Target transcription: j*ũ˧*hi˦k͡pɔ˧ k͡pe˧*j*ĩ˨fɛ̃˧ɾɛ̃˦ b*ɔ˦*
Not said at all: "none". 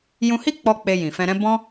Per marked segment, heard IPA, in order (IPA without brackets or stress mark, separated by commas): ũ˧, j, ɔ̃˦